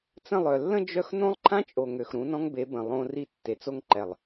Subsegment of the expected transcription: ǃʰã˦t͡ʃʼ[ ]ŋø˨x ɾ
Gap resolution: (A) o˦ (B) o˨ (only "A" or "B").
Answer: B